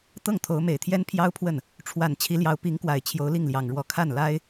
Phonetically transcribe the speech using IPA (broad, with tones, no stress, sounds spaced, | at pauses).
t̪ ɤ˥˩ ŋ t̪ʰ o˧˥ ʊ̯ m e˨˩ ɪ̯ t̪ʰ j ɛ˥ n pʰ j ɑ˥ ʊ̯ pʰ w ə˥˩ n | ʈ͡ʂʰ w a˨˩ n t͡ɕʰ i˧˥ l j ɑ˧˥ ʊ̯ p i˧˥ ŋ k w a˨˩ ɪ̯ t͡ɕʰ j o˧˥ ʊ̯ l i˥˩ ŋ l j ɑ˨˩ ŋ ɻ w ɔ˧˥ kʰ a˥˩ n l a˥ ɪ̯